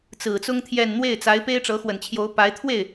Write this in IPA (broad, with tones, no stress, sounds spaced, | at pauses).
t͡s ɹ̩˨˩ t͡s ʊ˥ ŋ t̪ʰ j ɛ˥˧ n n̪ w e˥˩ ɪ̯ t͡s a˧˥ ɪ̯ p e˥ ɪ̯ ʈ͡ʂ ɤ˧˥ x w ə˨˩ n t͡ɕʰ j o˧˥ ʊ̯ p a˧˥ ɪ̯ t̪ʰ w e˥˩ ɪ̯